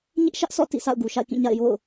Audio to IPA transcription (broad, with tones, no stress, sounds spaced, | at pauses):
ɲ ɪ˦ ʔ ʃ ä˦ ʔ sʰ ɔ̰˦˨ t ḭ˦˨ s a̰˦˨ ʊ̯ ɡ u˨ ʃ a̰˦˨ ɪ̯ k ĩ˦˨ ɲ a̰˦˨ ɪ̯ j o̰˦˨ ʊ̯